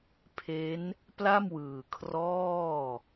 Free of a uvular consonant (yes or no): yes